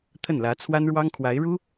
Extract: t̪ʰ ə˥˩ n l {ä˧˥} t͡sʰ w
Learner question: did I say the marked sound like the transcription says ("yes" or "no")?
yes